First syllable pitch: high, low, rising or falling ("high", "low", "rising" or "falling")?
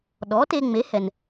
rising